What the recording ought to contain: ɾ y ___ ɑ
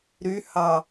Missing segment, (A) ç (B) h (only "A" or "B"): B